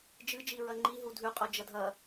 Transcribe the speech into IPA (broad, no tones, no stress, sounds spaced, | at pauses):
d͡ʒ ɨ d͡ʒ i ɹ ɐ ŋ͡ǃ i ɦ u dʱ ʉ qʼ o d͡ʒ ɐ dʱ ɐ